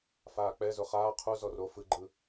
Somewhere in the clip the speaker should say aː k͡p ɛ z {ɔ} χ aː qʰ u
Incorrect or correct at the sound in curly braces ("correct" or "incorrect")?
incorrect